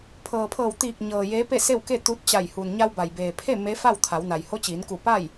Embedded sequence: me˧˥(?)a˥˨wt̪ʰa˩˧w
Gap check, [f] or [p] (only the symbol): f